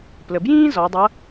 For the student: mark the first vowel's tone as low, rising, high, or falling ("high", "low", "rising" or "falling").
low